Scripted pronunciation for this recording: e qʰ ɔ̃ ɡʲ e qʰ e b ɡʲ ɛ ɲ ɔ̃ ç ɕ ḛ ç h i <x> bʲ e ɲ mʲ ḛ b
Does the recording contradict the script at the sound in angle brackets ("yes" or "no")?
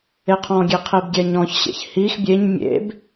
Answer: no